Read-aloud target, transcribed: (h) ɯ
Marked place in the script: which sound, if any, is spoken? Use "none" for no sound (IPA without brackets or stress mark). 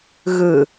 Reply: ɣ